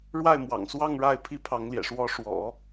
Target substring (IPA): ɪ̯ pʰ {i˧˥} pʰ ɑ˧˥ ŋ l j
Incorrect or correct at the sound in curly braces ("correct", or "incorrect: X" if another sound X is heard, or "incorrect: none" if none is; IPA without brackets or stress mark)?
incorrect: i˥